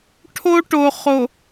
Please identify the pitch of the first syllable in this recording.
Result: high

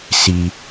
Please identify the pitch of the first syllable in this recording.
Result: low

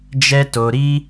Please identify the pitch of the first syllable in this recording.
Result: high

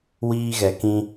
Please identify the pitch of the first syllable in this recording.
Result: high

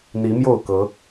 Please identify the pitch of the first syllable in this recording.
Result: rising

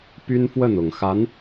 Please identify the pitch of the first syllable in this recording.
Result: high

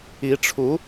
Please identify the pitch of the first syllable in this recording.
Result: rising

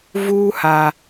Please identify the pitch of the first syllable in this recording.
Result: high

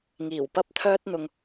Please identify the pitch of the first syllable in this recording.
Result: low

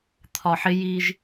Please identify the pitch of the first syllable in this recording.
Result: low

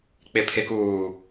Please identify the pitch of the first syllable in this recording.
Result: low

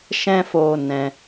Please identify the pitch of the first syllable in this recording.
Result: high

